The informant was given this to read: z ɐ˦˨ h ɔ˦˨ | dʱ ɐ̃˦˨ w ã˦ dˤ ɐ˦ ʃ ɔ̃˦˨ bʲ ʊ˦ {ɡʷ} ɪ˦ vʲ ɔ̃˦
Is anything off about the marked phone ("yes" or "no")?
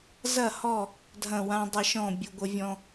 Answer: no